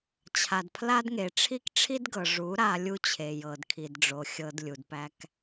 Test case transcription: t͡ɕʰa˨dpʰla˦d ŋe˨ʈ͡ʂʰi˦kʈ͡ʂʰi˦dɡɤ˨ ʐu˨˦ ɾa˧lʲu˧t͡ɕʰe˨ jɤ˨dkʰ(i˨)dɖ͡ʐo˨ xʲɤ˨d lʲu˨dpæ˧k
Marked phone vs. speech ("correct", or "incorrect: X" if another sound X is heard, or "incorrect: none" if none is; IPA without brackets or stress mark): correct